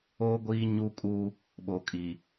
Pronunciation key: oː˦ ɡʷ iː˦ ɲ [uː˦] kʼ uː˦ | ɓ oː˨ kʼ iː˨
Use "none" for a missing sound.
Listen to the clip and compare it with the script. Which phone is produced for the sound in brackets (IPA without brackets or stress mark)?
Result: u˦